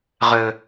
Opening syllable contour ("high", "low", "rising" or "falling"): high